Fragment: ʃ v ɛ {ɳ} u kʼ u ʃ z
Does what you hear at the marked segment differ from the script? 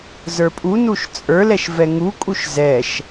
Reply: yes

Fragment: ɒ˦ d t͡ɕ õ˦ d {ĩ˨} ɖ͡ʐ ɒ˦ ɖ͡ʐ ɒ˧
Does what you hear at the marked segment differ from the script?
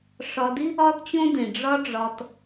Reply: no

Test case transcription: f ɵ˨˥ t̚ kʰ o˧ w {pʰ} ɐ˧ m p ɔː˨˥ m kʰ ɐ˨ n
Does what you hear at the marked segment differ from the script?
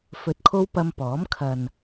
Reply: yes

